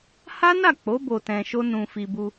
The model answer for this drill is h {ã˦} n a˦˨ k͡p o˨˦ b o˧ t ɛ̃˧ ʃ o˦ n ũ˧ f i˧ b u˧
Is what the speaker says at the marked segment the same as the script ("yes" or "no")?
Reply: no